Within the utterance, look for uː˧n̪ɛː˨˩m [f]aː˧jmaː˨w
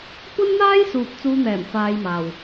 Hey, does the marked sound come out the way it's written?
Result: yes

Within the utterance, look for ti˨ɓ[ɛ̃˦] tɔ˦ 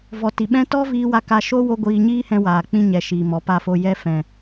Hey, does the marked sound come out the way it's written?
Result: yes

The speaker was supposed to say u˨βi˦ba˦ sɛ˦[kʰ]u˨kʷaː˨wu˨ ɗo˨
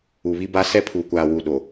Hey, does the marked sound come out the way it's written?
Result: no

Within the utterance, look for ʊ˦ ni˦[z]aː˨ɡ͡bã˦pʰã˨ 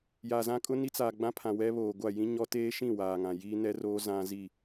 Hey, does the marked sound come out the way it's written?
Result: no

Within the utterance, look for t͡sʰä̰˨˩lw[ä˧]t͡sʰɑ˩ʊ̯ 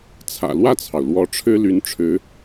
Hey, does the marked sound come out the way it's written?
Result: no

